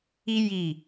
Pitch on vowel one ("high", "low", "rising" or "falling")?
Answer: high